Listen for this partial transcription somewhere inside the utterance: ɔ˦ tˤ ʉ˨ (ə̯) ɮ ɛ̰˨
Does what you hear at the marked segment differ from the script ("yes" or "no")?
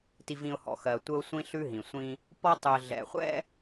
no